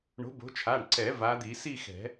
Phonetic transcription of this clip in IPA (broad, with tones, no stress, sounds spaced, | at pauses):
ɳ o̤˨˦ b o̤˨˦ t͡ʃʰ a˩˧˩ ɳ ǀ ɛ˨˩˦ v a˨˦ d̪ i˨˩˦ s i˥˧ x ɛ̤˨˩˦